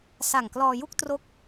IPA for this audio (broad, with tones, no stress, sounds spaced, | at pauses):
s a˨˩ ŋ k l ɔː˧ j u˥˩ k̚ t r o˥˩ k̚